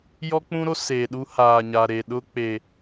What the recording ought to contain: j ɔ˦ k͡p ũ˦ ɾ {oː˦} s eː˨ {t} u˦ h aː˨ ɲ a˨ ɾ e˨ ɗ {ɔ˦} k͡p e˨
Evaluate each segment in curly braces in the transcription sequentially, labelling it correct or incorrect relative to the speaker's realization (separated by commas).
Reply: incorrect, incorrect, incorrect